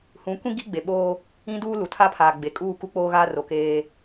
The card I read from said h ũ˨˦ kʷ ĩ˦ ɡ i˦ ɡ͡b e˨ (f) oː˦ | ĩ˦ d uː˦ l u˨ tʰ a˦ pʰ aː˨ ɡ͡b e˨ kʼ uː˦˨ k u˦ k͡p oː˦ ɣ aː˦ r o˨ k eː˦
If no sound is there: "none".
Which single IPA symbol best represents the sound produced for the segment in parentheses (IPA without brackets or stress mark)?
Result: ɓ